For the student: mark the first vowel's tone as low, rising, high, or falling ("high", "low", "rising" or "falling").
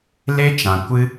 high